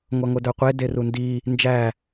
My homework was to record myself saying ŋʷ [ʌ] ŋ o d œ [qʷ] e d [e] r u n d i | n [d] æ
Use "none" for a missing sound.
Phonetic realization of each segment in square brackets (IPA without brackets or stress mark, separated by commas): ʌ, qʷ, e, d͡ʒ